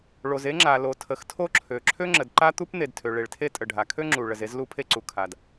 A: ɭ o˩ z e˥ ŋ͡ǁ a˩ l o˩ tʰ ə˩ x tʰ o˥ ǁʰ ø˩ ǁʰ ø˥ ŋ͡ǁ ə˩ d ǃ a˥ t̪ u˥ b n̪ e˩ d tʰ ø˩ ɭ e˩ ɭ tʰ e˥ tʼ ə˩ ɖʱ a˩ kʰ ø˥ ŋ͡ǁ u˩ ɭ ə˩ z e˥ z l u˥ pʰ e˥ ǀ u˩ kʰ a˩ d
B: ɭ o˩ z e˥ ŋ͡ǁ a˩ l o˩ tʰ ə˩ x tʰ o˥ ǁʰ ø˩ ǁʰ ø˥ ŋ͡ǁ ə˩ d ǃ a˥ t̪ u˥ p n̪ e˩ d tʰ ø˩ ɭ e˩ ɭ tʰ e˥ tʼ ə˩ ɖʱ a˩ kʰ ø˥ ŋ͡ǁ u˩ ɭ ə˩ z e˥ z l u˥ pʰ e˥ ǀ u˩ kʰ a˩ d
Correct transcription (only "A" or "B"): B